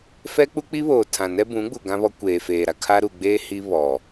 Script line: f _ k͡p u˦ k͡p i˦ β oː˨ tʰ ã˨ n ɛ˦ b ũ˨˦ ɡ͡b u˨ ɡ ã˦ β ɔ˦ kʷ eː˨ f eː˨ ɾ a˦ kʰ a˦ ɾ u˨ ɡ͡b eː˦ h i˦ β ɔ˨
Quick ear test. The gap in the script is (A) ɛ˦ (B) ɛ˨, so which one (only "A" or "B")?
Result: A